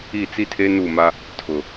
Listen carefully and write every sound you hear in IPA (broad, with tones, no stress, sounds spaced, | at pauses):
i˦˨ t͡s i˦ tʰ e˦ n u˦˨ m a˦ | tʰ ʊ˨